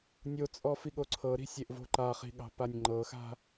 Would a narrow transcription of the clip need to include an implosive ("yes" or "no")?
yes